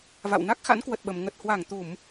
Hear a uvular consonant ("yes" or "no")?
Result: no